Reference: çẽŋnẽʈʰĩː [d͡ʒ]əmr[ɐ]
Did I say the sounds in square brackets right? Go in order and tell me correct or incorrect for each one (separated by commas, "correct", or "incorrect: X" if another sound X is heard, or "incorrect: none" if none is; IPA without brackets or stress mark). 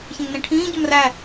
incorrect: ɟ, incorrect: æ